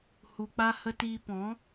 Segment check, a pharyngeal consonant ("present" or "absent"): absent